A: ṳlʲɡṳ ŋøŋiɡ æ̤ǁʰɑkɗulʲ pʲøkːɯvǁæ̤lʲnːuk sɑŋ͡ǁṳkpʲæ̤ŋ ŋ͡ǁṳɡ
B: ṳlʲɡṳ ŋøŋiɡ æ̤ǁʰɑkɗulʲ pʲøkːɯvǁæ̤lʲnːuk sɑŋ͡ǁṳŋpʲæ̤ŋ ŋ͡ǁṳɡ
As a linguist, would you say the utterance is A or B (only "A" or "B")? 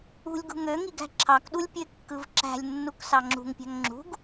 B